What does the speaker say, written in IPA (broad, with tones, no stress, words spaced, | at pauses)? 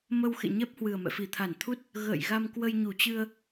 mə˧wxḛ˧˨ɲɛ˦˥p̚ hwɨ˨˩ə̯mɛ̰˧˨fi˧˩t̪ʰa˧˩n t̪ʰu˦˥t̚ | ɣə̰ː˧˨j ɣa˧mkwə˧jɲu˧˩t͡ɕɨ˧ə̯